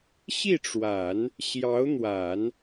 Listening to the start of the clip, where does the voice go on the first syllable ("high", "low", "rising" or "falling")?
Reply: falling